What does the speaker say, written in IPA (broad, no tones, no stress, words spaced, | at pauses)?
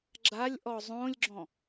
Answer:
ɡ͡ǁalʲ ʔɔzˤõlʲɡ͡ǁɔ̃